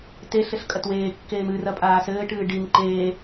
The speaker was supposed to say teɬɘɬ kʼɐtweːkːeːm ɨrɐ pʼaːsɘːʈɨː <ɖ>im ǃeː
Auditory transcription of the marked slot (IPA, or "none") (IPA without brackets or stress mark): ɖ